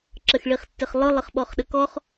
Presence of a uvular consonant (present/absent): present